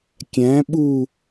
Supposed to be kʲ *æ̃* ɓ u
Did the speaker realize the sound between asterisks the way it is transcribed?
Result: yes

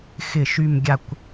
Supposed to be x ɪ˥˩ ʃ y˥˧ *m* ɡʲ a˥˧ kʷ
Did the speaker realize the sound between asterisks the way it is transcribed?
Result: yes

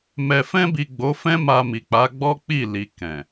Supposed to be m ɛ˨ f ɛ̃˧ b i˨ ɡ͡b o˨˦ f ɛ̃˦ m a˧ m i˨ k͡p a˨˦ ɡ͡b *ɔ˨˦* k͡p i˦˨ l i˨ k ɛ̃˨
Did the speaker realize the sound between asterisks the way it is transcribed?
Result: no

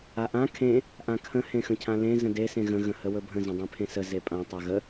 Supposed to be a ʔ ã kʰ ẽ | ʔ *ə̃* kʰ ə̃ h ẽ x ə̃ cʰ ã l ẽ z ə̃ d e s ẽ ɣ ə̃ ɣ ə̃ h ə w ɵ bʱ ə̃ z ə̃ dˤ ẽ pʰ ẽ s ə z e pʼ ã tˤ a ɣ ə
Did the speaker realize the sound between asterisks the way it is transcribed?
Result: no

